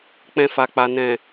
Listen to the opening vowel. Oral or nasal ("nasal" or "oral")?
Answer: nasal